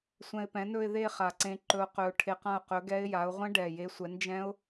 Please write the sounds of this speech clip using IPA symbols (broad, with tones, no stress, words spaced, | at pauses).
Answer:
sʷɛ̃˧ɪ̯pɛ̃˨˥nɵ˥˧ɪ̯ ðe˥˧ χa˨˩ǀẽ˧ ǃɵ˧ʊ̯qɵ˧ʊ̯ʈʰe˧qã˥˧ʊ̯ qɵ˨˥ɡɛ˦˥ɪ̯ja˨˥ʊ̯ ʁʷɛ̃˦˥ɖɛ˨˩je˨˥sʷɛ˨˥n d͡ʒɛ̃˦˥ʊ̯